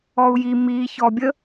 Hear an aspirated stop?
no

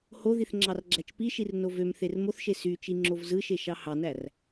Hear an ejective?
no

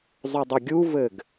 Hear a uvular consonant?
no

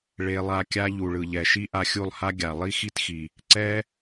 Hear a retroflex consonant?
yes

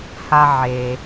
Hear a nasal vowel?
no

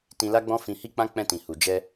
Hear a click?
no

